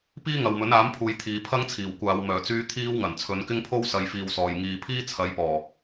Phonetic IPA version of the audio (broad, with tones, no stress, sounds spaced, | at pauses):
p iː˥ ŋ ɐ˨ w m ɵ˨˥ n aː˨˥ m pʰ uː˨ j t̪ʰ iː˨ pʰ ɐ˥ ŋ t͡sʰ iː˨˩ w kʷ aː˨˧ w m œː˨˩ t͡s yː˧ t̪ʰ iː˧ w ŋ ɐ˨˩ n t͡sʰ ɵ˨˧ n k ɪ˥ ŋ pʰ o˥ w s ɐ˨ j f iː˨ w s ɔː˨˩ j ŋ iː˨ pʰ iː˥ t͡sʰ ɐ˨˧ j p ɔː˨˩